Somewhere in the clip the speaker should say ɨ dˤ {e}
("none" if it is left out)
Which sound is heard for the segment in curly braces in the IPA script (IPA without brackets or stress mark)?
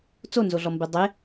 e